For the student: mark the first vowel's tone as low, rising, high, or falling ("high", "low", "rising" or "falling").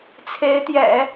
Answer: rising